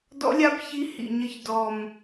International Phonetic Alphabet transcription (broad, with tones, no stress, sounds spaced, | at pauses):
d ɔ̰˧˥ lʲ a˧˥ b ç i˧˥ h ḭ˨˩ ɲ ə˦˨ ç d ɔ˨˩ m